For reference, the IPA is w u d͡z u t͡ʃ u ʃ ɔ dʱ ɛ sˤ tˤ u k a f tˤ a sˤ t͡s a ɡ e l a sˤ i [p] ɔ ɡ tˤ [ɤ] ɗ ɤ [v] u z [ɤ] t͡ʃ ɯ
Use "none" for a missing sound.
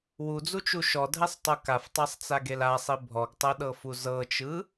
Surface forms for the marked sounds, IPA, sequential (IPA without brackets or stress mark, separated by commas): bʱ, ɤ, f, ɤ